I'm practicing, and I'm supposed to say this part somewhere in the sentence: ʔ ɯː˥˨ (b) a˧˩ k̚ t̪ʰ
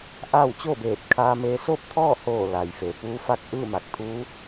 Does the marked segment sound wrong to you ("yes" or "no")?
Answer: yes